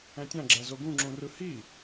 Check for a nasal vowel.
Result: present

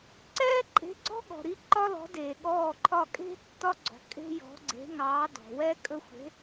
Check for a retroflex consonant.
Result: absent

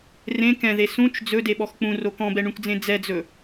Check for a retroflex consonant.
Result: present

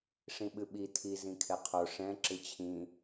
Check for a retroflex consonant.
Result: present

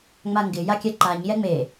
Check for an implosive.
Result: absent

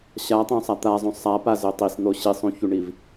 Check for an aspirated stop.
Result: absent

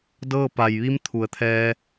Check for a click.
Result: absent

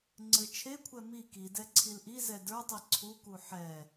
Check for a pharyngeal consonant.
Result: present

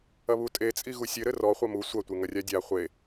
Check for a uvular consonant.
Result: present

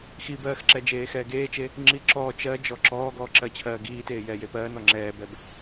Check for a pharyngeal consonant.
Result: absent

